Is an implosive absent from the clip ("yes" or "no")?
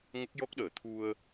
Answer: no